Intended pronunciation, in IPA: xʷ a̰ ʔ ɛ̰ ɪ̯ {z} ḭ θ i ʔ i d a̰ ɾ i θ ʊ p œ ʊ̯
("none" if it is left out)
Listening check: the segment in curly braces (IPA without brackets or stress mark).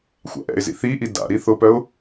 z